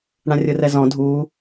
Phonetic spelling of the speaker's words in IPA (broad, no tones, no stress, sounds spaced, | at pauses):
ɽ ã rʲ ɯ r ɛ z ɔ̃ dʱ uː